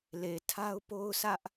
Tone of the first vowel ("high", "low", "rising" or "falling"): low